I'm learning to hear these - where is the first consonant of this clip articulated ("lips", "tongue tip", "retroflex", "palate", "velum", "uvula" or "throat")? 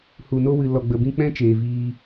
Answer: throat